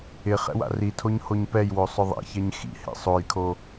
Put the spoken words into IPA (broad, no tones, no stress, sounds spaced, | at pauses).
ɪ χ ɛ̰ w a̰ r i tʰ o ɲ h o ɲ p ɛ j w o sˤ ʊ ðˤ ɛ̰ ç ɛ ɲ x ḭ h ḛ sˤ o j kʰ o